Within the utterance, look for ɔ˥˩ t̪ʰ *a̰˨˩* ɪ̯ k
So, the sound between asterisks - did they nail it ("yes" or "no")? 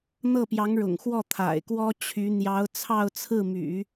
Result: yes